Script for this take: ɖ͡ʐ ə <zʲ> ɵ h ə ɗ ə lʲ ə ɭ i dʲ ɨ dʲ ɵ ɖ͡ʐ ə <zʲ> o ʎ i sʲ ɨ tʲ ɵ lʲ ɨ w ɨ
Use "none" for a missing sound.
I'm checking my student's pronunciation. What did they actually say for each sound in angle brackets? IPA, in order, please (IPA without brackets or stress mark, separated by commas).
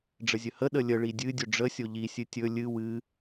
zʲ, sʲ